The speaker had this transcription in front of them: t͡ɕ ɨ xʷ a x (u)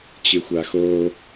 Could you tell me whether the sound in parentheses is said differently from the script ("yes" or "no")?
yes